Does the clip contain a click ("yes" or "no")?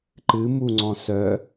yes